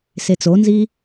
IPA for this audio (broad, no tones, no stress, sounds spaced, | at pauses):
s e t͡s o n z i